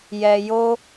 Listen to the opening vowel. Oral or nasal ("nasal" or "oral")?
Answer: oral